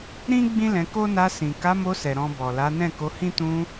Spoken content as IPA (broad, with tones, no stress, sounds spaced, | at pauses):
ɾ ĩ˦ ɡ͡b ĩ˦ l ɛ̃˧ k o˦ n a˧ s ĩ˨ k a˨˦ m o˧ s ɛ˨ ɾ ɔ̃˧ b ɔ˨ l a˨˦ n ɛ̃˦˨ k o˨˦ h ĩ˦ t ũ˧